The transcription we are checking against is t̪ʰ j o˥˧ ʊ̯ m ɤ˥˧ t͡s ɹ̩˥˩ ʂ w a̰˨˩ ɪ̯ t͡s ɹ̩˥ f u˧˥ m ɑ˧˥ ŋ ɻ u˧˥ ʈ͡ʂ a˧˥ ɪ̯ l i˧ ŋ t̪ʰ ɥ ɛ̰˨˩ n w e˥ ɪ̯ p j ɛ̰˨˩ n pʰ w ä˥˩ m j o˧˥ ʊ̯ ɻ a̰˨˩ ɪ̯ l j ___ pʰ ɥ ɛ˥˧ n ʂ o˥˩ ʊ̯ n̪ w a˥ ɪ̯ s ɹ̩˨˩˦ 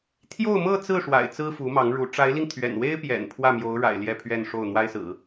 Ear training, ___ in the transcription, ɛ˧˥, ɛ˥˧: ɛ˥˧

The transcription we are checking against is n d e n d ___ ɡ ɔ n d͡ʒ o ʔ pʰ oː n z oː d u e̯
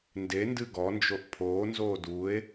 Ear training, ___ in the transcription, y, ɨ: ɨ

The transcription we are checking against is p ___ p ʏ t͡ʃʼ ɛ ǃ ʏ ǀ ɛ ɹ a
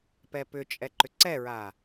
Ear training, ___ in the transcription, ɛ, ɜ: ɛ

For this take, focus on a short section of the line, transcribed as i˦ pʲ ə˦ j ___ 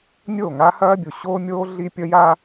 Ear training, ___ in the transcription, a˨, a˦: a˦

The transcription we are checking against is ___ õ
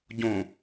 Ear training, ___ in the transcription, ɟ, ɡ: ɟ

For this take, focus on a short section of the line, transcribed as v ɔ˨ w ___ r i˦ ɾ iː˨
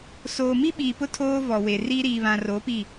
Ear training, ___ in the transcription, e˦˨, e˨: e˨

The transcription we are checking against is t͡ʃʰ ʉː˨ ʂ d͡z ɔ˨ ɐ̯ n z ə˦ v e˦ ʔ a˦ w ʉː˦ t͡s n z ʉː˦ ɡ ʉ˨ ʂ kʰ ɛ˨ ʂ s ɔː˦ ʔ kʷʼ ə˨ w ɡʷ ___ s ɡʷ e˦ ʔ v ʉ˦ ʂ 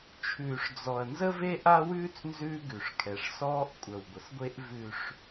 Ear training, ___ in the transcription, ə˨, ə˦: ə˨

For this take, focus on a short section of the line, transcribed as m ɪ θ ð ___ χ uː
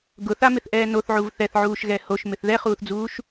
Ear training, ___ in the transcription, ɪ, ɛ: ɛ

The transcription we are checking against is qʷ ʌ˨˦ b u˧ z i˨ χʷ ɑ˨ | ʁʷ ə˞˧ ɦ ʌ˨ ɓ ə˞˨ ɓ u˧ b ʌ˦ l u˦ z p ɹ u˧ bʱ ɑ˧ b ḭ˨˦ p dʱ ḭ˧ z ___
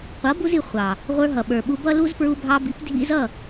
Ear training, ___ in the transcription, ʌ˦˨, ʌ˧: ʌ˦˨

